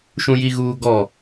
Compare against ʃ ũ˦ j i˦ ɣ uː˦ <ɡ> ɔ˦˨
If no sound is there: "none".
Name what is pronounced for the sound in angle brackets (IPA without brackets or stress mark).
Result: ɡ